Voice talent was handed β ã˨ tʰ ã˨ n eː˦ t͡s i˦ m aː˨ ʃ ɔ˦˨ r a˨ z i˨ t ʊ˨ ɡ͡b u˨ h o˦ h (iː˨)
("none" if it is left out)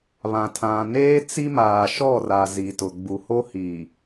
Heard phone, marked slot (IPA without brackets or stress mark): iː˨